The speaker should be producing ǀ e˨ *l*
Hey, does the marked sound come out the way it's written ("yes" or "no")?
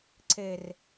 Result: no